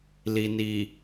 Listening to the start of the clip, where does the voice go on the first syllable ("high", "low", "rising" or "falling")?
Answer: low